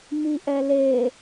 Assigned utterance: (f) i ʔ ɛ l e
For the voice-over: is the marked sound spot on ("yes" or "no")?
no